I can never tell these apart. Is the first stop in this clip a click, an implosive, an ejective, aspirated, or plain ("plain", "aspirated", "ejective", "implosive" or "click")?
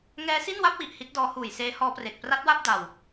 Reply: plain